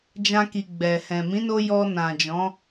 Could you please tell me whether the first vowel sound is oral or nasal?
nasal